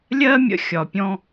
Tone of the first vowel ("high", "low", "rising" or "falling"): high